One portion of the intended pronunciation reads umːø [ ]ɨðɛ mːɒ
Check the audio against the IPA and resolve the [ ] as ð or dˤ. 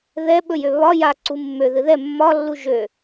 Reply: ð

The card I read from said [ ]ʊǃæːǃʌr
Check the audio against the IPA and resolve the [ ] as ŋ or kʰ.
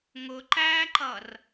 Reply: ŋ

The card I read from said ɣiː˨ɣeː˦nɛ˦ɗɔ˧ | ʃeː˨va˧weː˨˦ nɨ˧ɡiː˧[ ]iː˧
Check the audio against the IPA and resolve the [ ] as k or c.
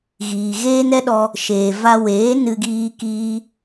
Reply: k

